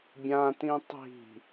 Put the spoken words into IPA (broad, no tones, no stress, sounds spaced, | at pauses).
bʲ ã t ĩ tˤ i̤